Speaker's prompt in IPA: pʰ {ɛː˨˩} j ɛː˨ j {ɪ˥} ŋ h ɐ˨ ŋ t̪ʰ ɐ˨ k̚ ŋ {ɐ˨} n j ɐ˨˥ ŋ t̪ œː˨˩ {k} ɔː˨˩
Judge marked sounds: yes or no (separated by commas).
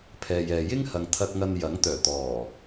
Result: no, yes, yes, no